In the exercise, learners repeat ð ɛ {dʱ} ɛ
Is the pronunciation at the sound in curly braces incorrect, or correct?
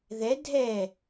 correct